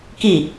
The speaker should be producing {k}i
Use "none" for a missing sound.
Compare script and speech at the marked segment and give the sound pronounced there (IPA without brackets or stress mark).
k